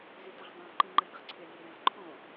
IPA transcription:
z y t ə ʁ dˤ õ ǃ ĩ ŋ͡ǃ ə nʲ ə χ ǀʰ ʏ nʲ o ɾ ẽ ʁ ǃʰ õ

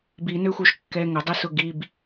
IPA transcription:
b i n ø xʷ œ ʃ kː ɛ ŋ ʊ dˤ i s ʊ ɡ i b

